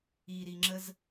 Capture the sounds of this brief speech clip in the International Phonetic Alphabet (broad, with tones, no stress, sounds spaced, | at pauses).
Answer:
i˨ ɾ i˨ ŋ͡ǁ ə˧ z